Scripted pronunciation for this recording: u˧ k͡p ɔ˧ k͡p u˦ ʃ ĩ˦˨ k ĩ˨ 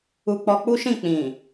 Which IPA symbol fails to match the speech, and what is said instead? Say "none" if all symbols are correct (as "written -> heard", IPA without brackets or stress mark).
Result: k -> k͡p